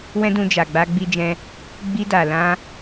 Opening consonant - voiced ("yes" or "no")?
yes